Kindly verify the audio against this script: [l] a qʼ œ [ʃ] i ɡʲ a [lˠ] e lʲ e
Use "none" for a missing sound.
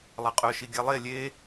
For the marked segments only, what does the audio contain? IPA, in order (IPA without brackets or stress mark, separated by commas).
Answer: lˠ, ʃ, lˠ